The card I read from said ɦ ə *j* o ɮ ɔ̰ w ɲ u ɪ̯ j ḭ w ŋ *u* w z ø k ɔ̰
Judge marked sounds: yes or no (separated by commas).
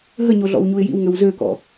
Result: no, no